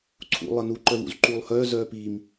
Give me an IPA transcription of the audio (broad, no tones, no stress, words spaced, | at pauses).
ǀʰṵ lˠənu ǃœvṵzǃuːlˠhœː zœːpiːm